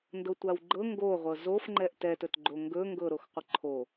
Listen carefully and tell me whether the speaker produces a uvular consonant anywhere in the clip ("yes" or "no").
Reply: yes